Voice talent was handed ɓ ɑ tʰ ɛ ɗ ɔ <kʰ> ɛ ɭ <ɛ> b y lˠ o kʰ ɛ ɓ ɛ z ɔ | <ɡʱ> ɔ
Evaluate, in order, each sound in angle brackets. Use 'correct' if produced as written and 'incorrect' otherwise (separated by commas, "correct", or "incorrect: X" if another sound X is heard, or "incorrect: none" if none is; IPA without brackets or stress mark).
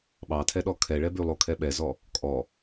correct, correct, incorrect: kʼ